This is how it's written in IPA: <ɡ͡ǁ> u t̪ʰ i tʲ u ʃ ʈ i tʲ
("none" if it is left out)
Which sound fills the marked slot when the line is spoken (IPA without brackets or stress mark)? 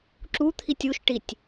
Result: ǁ